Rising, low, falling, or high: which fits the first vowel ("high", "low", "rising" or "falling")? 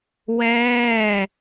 falling